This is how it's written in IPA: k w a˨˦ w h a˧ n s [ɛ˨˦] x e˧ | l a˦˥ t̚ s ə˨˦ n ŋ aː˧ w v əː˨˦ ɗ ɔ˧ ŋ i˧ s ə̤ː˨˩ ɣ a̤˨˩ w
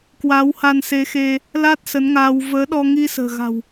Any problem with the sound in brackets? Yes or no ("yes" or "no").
yes